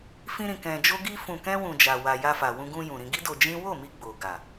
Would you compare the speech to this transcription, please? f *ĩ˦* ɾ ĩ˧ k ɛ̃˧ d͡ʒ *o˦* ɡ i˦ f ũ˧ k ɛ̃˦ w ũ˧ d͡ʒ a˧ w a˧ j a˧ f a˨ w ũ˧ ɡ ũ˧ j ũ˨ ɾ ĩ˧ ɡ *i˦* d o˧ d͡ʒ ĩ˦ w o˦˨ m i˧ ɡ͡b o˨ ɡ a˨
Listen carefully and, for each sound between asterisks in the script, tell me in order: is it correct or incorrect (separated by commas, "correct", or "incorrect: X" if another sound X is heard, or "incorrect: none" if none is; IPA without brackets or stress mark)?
correct, correct, correct